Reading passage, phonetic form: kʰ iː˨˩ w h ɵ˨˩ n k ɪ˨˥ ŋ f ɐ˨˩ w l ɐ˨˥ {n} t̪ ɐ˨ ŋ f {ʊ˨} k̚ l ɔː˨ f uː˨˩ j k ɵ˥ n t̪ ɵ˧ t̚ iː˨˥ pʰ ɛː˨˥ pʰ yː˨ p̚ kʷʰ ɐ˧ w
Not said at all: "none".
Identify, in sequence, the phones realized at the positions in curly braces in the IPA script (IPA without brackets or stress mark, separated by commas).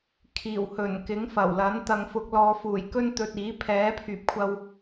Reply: n, ʊ˨